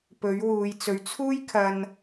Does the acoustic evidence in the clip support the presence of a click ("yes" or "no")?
no